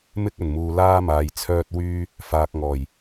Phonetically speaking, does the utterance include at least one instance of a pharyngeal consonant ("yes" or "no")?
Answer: no